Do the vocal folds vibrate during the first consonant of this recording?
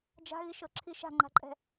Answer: yes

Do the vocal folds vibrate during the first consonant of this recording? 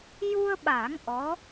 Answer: yes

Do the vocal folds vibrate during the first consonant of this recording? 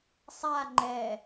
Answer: no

